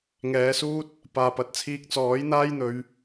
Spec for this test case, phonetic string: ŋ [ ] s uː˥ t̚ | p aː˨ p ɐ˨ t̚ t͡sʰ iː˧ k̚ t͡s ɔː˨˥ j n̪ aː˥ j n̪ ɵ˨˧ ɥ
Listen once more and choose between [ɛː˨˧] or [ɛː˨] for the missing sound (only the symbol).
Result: ɛː˨˧